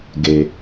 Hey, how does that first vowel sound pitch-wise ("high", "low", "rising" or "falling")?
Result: high